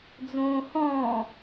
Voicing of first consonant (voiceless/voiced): voiced